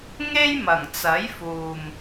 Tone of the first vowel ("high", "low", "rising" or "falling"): high